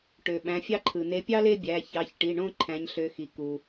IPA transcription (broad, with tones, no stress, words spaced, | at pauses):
ʈø˩ ɓæ̃˩˧˩fʲɑ˥ǃʰɯ˩ ne˨˦pʲɑ˥le˥˧ bʲæ˩˧˩çɑ˩˧˩çʈi˩˧˩ɳõ˥˧ ǃʰæ̃˨˦ɲɬø˨˦xi˩ ku˩